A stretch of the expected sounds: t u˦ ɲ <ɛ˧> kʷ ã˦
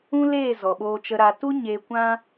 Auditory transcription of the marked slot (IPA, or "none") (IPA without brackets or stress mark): e˧